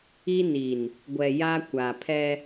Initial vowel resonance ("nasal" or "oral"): oral